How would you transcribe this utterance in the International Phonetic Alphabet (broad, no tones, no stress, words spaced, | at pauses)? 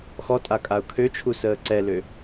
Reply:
xɔtʼakʼaʊ̯ kʰøt͡ʃʰu səːǀɛlø